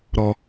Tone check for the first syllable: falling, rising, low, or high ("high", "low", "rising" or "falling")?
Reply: low